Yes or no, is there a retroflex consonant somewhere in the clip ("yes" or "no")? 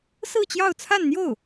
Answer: no